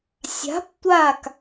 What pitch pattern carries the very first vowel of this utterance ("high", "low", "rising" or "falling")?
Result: rising